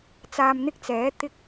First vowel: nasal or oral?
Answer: oral